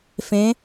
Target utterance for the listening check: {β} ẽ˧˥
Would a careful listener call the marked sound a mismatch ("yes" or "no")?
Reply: yes